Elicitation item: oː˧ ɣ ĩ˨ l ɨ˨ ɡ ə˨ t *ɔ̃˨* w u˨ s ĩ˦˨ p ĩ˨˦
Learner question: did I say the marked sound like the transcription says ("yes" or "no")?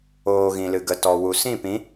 no